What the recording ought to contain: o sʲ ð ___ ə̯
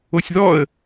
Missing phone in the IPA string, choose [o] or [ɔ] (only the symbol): ɔ